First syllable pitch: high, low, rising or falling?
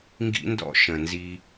high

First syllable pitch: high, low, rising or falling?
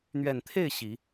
low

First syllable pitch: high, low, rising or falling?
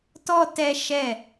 high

